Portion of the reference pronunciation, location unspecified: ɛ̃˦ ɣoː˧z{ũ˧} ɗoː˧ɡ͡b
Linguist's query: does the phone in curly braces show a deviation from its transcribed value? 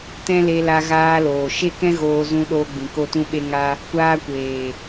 no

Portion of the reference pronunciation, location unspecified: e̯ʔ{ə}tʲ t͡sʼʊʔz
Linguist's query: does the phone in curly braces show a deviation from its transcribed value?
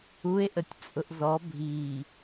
no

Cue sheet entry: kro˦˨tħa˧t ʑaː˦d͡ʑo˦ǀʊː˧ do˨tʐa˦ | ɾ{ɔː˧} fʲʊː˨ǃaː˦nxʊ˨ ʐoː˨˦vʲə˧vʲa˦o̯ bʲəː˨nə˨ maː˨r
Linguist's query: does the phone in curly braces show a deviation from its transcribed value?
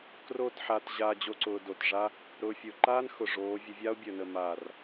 yes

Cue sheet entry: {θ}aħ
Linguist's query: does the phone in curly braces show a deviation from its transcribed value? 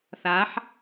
no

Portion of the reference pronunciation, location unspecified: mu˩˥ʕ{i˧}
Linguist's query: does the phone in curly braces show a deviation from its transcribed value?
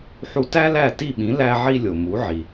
yes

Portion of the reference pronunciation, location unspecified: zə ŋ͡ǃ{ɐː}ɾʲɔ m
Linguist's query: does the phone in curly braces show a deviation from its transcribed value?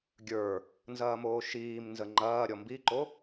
no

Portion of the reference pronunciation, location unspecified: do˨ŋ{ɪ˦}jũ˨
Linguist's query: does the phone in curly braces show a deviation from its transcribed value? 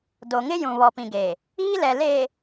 no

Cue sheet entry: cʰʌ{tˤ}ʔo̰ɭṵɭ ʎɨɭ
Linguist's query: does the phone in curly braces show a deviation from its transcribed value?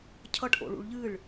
yes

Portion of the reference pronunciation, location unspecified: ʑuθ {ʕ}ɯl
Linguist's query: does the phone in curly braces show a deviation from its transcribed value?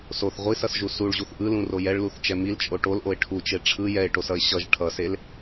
yes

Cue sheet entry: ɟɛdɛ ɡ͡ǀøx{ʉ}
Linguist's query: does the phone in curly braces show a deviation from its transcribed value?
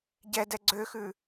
no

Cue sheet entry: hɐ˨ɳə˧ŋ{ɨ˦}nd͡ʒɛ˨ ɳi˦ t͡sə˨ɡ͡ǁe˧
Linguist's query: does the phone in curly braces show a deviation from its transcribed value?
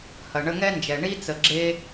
yes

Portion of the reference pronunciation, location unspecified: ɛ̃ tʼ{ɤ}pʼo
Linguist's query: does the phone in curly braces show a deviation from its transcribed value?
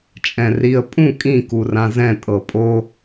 no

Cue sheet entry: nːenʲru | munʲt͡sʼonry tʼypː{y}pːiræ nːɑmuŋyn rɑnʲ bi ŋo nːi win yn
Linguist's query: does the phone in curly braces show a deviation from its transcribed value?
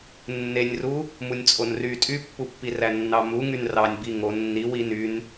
yes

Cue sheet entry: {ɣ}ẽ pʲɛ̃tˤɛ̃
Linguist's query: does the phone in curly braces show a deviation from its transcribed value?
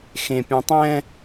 yes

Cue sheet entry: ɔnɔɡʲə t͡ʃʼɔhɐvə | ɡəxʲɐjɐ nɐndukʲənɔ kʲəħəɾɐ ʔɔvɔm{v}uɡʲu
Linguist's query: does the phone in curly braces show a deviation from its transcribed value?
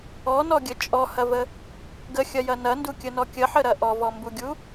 yes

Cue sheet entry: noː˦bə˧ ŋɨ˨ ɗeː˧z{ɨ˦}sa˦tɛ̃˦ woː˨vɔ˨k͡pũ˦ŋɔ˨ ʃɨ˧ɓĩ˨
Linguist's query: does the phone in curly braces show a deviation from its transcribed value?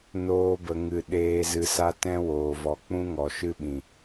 yes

